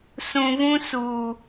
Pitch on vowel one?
low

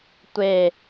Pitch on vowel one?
falling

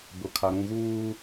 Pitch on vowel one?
low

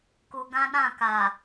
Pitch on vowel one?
low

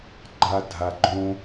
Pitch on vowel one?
high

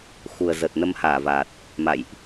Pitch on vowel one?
low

